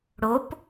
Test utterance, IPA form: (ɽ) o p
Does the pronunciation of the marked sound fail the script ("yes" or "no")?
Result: no